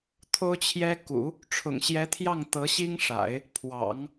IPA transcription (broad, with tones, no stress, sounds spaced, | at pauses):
t̪ʰ o˥ ʊ̯ t͡ɕʰ j ɛ˥ k ṵ˨˩˦ | ʈ͡ʂʰ ʊ̰˨˩ ŋ ɕ j ɛ˧˥ t̪ʰ j ɑ˥˩ ŋ t̪ ɤ˧˥ ɕ i˥ ŋ ʂ a̰˨˩˦ ɪ̯ | pʰ w ɑ̰˨˩˦ ŋ